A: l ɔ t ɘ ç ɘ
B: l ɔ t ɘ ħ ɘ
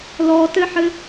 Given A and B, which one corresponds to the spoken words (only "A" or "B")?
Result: B